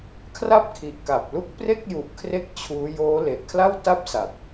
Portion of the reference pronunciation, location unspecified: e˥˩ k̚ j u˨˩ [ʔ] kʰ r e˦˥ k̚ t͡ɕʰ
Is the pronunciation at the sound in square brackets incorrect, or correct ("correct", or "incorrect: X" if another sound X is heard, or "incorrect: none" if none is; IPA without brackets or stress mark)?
correct